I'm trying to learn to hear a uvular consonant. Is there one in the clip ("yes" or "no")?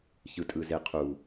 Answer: yes